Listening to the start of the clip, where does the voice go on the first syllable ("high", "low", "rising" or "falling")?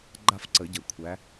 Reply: falling